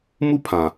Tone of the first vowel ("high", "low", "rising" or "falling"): high